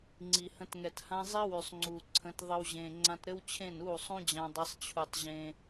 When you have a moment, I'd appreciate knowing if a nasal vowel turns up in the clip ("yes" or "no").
yes